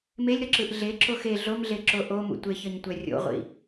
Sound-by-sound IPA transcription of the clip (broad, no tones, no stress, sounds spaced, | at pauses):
m e lʲ ɾ ʌ ǁ ɯ ʔ ɮ e ǁ o x e ɮ o m ɮ e ǁ o ʔ o m ṵ tʷ e ç ʌ ɲ tʷ ɛ rʲ o̰ ʁʷ ḭ